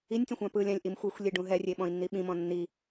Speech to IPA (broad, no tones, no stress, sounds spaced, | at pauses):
i nʲ tʲ õ xʷ ã p ɯ lʲ ã lʲ ʔ i m xʷ ɤ xʷ lʲ e ɖ ũ ɦ ɛ rʲ e ɓ ɔ̃ i̯ nː i ɓ ĩ m ɔ̃ nː i